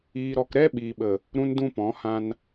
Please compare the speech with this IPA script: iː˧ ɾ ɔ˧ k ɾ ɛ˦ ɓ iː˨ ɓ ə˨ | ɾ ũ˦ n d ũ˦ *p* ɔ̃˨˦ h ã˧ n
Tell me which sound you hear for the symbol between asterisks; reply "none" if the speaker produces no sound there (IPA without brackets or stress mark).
p